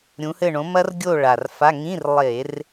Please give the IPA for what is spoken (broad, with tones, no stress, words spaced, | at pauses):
ɾʲũ˨˦hɘ˦˨ ɳõ˨˦mɐ˦˥r ɡʲo˦˨ ɭa˨˩rfa˧˥˧ ŋĩ˧˥˧r lˠe˧˩˧r